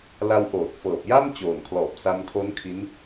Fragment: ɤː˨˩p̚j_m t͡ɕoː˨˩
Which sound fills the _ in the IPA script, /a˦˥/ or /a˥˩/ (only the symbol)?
a˥˩